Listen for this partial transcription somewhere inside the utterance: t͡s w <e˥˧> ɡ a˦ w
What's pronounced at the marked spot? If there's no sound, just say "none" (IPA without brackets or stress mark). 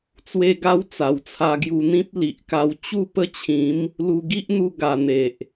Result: e˦